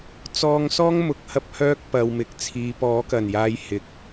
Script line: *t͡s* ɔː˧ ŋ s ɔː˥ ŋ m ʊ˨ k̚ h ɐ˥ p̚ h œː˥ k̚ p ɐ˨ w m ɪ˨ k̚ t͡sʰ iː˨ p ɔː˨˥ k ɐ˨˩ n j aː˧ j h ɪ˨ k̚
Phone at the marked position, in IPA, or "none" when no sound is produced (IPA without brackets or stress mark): t͡s